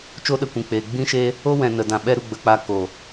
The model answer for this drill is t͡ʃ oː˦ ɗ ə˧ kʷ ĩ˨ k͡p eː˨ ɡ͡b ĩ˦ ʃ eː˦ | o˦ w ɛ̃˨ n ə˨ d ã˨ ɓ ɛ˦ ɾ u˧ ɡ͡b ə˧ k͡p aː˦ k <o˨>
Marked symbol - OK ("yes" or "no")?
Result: yes